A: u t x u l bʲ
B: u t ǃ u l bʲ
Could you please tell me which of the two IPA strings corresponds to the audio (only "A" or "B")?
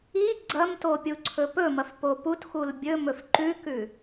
A